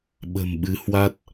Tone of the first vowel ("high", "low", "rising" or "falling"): low